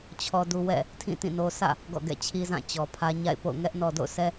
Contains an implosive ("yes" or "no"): no